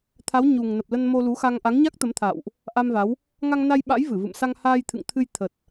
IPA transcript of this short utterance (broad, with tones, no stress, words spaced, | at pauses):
t̪ʰa˨˦wɲu˨˩ŋnə˨˩p̚ lə˧nmo˧lu˨˦xa˧ŋ ʔa˨˦ŋɲa˦˥k̚t̪ə˨˦mt̪ʰa̰˧˨wʔ | ʔa˧mva˨˦w | ŋa˧ŋna˧jɓa̰˧˥jvɨ˧˩ vɨ̰˧˨msa˧ŋ haː˧jt̪ʰɨ̰˧˨ŋt̪ʰɨ˧j t̪ʰə˨˩t̚